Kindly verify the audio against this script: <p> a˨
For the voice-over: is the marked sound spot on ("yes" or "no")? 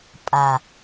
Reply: no